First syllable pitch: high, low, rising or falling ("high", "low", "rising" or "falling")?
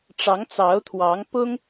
rising